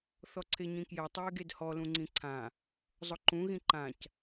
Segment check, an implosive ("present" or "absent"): absent